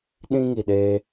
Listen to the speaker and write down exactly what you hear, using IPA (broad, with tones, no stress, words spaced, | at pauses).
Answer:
ɗĩ˦ŋi˨ɗe˧